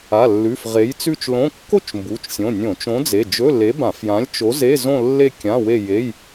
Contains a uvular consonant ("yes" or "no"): yes